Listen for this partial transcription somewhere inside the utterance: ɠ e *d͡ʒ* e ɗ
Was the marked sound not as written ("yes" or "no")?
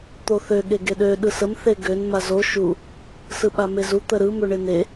yes